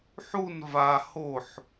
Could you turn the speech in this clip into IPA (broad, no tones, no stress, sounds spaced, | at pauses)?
ħ u n v a h o ħ